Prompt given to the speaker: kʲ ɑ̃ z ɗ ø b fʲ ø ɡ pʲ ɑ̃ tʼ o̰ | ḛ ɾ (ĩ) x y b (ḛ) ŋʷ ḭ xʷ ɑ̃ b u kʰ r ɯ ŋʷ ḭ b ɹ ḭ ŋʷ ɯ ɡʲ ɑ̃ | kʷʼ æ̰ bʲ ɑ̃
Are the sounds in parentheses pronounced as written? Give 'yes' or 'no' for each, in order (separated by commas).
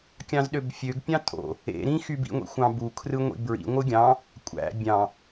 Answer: yes, no